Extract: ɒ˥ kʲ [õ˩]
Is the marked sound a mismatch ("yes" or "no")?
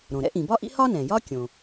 no